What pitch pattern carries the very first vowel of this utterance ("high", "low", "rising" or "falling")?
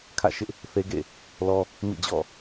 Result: falling